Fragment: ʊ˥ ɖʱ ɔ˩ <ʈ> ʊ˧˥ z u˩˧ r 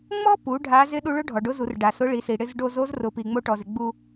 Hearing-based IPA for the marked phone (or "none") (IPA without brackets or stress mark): ɖ